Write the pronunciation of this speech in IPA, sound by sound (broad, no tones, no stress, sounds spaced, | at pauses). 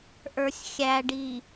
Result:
ʔ ə˞ sʲ xʲ æ ɖ i